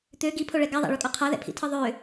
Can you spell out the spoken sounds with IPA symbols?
t̪ ø ɡ i pʰ o ɭ ɛ ɡ a ðˤ a̰ ɭ ɵ kʼ ɔ qʰ a ð ɛ̰ pʰ ḭ tʰ ɨ ðˤ ø

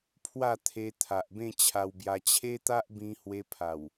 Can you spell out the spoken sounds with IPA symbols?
pʰ w a˥˧ t̪ʰ e˧ t̪ʰ a˨ ʔ b ẽ˥˧ t͡ɕʰ a˧ w b j a˧ t͡ɕʰ e˦ t̪ a˦ ʔ b ĩ˧ h w e˧ pʰ a˨˩ w

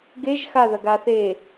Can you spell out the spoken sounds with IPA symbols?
ɡ e ʒ x a ð ɐ ɡ a θ e

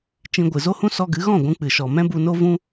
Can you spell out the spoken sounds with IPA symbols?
t͡ʃ ĩ˧ ɡʷ ɨ˨ z o˦ h ũ˦ s ɔ˧ ɡ ɨ˨˦ ɣ ɔ̃˦˨ ɡʷ ũ˧ k͡p ɨ˨ ʃ ɔ˨ m ɛ̃˦ b u˧ n o˦ v ũ˦

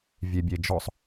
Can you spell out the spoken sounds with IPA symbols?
vʲ e bʲ e d͡ʒ ɔ sˤ

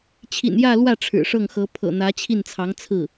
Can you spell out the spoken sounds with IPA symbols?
t͡ɕʰ ḭ˨˩ n j ä˥˧ l w ä˥˩ ʈ͡ʂʰ ɻ̩˨˩ ʂ ɤ˥˩ ŋ x ɤ˧˥ pʰ ɤ̰˨˩ n̪ ä˧˥ t͡ɕʰ i˥˩ n t͡sʰ ɑ˧˥ ŋ t͡sʰ ɹ̩˥˩

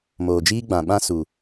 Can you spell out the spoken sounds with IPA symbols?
m oː˨ d͡ʒ iː˦ ɡ͡b ã˨ ɓ ã˦ s u˨

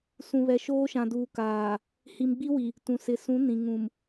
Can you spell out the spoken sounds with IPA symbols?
s ũ˨ β ɛ˨ ʃ oː˦ ʃ ã˨ d uː˨ k aː˨ | h i˨ m ɡ͡b i˦ w i˨ | t ũ˨ s ɪ˨ s ũ˨˦ n ĩ˨ ŋ ũ˨ m

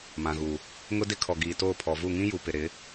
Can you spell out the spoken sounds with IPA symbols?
m ã˨ ɣ u˨ | ŋ ʊ˦ d ɪ˦ kʰ ɔ˨ ɡ iː˨ t oː˦˨ pʰ ɔ˨ v u˦˨ ŋ ĩ˦ j u˨ p ɪ˨ ɾ ɪ˨˦

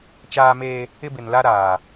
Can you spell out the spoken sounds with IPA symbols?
t͡ʃ aː˦ m eː˦ | ɪ˦ b ɪ˨ n l a˦ ɾ aː˨

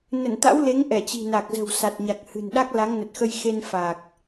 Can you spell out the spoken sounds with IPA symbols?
n ə˧˩ n t̪ a̰˧˥ w l e˨˦ ŋ ʔ ɛ˧˩ t͡ɕ i̤˨˩ n a˨˩ k̚ z ə̤˨˩ w s a˨˩ t̚ ɲ a˨˩ k̚ h ɨ̤˨˩ n ɗ a˦˥ k̚ l a˨˦ ŋ n ə˨˩ t̚ x ə˧ j x e˧ n f a˨˩ k̚

